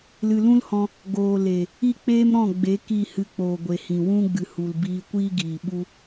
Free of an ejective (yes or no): yes